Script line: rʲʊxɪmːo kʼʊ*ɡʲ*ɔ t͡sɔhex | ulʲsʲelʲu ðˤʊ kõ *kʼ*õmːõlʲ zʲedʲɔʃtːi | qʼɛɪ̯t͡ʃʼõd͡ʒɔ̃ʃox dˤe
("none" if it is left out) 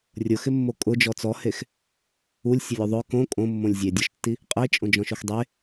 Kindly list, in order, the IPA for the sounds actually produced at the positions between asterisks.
d͡ʒ, kʼ

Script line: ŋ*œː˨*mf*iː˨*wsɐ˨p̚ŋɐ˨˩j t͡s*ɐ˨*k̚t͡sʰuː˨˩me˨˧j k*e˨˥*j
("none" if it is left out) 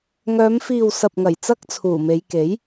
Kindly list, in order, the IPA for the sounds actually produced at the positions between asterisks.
œː˨˧, iː˨, ɐ˥, e˨˥

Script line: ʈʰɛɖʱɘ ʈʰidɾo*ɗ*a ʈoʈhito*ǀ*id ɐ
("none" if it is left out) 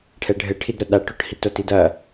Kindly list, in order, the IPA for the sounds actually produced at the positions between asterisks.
ɗ, t

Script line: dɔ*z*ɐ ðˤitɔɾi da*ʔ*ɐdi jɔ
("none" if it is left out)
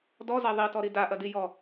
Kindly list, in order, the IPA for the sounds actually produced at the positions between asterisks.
z, ʔ

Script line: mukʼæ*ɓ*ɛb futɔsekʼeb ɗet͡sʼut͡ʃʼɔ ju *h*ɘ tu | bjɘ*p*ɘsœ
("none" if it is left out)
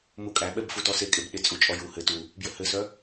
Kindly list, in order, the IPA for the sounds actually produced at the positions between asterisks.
ɓ, h, h

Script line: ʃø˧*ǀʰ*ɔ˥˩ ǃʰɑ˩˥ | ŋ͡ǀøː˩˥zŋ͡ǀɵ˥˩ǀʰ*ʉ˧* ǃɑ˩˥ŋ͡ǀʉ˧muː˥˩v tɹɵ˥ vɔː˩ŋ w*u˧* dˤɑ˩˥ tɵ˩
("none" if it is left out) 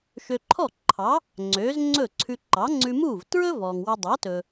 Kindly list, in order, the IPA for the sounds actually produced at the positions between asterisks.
ǃʰ, ʉ˧, u˧

